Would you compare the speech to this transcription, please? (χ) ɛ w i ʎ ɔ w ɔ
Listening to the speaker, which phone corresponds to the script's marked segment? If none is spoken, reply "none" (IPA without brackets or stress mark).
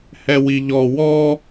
h